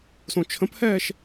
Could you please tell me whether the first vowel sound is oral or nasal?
nasal